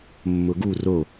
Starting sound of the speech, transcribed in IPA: mː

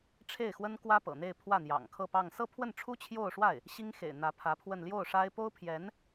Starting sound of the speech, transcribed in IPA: ʈ͡ʂʰ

